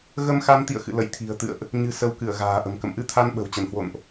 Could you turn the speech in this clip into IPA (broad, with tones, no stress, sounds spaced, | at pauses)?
ɣ ə˧ m x a˧ n t̪ ḭ˧˨ ə̯ x ɨ̰˧˨ l ə̰˧˨ j t̪ʰ i̤˨˩ ə̯ t̪ ɨ̰˧˨ ə̯ ʔ | ɲ ɨ̤˨˩ s ə˨˦ w k ɨ˧˩ ə̯ ɣ a̤ː˨˩ ʔ ə̤˨˩ m k ə̰˧˨ m ʔ ɨ˧ t̪ʰ a˧ n ɓ ə̤˨˩ w t͡ɕ ə˧˩ n h w o̰˧˨ n ʔ